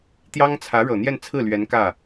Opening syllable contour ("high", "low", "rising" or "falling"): high